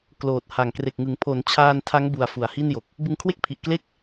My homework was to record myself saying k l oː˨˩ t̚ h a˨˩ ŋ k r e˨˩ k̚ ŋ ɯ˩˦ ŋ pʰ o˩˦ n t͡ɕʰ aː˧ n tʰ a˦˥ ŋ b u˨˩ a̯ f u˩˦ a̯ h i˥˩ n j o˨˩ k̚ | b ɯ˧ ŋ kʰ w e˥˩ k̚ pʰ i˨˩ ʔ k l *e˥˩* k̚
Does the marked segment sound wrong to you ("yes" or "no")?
no